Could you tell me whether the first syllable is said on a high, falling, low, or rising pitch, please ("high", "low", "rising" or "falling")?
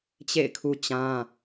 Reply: falling